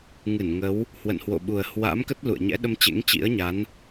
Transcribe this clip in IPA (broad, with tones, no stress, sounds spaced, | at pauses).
ŋ ɨ˧˩ n ŋ ə˨˦ w | h w ə̰˧˨ n h w o̰˧˨ ɓ u˨˩ ə̯ h w a̰˧˥ m k ə˦˥ t̚ l ṵ˧˨ ə̯ ɲ ɛ̰˧˥ ɗ ə˧ m t͡ɕ ḛ˧˥ ŋ t͡ɕ ḭ˧˥ ə̯ ɲ a˨˦ n